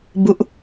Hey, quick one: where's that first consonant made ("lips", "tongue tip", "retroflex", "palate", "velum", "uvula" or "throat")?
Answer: lips